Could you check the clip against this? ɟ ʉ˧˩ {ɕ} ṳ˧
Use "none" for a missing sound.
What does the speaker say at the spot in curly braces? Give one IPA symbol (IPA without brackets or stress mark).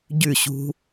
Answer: ɕ